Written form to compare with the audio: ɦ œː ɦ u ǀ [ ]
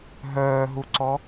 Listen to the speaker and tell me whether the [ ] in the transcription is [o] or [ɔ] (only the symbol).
ɔ